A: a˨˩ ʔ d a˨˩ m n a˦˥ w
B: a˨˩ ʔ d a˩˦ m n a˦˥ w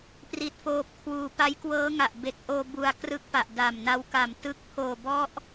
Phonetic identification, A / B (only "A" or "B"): A